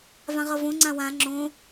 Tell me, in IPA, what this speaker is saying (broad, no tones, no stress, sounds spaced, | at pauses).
v ã ʁ ʌ v õ ŋ͡ǀ ã w ã ŋ͡ǁ õ